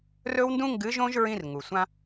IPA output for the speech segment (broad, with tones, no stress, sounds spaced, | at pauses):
r ɵ˦ w n d ũ˦ ŋ ɡ ɨ˨˥ ʒ õ˦ ʒ ɹ ĩ˦ r ŋ u˩ sʷ ã˦